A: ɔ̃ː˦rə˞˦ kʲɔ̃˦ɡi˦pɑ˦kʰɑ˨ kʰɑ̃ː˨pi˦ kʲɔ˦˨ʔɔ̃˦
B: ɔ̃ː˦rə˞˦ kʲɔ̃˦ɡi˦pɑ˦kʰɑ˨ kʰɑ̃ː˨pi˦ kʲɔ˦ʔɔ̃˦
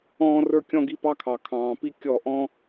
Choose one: A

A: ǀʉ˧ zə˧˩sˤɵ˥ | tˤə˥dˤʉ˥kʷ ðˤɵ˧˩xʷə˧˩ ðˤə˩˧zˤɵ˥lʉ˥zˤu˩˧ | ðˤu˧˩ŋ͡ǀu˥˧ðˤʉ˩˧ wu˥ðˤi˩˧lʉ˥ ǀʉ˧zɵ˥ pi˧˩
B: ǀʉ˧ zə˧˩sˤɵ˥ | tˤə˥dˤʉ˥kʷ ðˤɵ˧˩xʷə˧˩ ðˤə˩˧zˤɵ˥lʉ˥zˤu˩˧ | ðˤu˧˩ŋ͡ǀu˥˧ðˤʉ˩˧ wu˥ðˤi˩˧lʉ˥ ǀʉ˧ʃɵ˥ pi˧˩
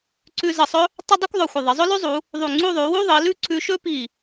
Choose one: B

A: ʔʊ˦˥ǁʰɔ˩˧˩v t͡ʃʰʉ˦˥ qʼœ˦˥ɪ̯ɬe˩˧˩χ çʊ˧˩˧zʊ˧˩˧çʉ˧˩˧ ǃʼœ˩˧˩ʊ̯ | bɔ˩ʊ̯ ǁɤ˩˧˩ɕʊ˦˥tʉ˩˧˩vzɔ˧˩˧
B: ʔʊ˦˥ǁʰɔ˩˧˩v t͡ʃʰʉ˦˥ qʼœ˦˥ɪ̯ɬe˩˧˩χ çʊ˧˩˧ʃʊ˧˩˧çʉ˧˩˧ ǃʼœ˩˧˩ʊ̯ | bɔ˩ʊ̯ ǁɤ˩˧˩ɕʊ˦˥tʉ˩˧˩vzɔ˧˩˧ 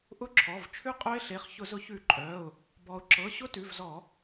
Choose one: A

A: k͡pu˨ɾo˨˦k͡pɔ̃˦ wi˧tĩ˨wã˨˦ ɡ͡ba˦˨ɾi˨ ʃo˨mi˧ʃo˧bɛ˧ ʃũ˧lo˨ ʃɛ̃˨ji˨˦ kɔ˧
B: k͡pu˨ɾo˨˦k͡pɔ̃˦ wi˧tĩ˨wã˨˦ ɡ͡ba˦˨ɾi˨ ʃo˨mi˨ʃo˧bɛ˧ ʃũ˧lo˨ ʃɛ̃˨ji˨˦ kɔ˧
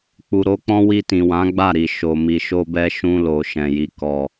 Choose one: B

